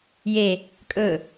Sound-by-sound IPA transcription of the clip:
j e | kʼ ɵ

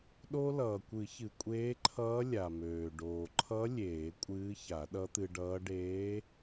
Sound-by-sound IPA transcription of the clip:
ɗ o˧ l ʌː˩ kʷ ɨ˨˩˦ ç ɨ˩ kʷʼ eː˧˥ ǃʰ ʌː˧˥ lʲ a˩ m øː˩ ɖ oː˩ ǃʰ ʌ˧˥ lʲ eː˨˩˦ kʷʼ ɨː˧˥ ç a˨˩˦ ɗ ʌ˧˥ t̪ ɨ˧ ɖ ʌː˧˥ ɖ eː˧˥

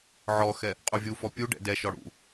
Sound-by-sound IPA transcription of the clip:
ʕ ɔ x ɛ | qʼ u vʲ u f ɔ pʲ u ɖ ɛ̰ d ɛ ʃ ɔ ɽ ṵ

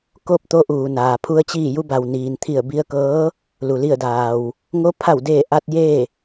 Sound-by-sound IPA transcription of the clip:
k o˥˨ p̚ t̪ o˧˥ ʔ uː˩ n aː˩ pʰ u˧ ə̯ t͡ɕ iː˧˩ j u˧ b a˩ w n iː˩ n t̪ʰ i˧˩ ə̯ b i˧ ə̯ k ɤː˧˥ | l u˩ l i˧˩ ə̯ d aː˩ w | ŋ o˧˥ pʰ a˧˩ w d eː˧˩ ʔ a˧ t̚ j eː˥˨

